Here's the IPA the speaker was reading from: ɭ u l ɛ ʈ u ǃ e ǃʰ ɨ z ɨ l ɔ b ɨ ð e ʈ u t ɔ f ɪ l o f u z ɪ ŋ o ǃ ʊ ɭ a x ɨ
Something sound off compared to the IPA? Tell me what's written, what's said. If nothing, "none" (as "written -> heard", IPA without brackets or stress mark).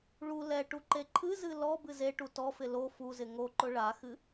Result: ð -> z